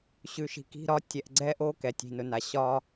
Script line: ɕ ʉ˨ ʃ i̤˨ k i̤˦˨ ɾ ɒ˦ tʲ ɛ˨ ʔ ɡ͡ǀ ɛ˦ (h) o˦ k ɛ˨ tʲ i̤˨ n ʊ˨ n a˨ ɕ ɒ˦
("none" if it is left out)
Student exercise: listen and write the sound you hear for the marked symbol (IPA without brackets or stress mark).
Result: ʔ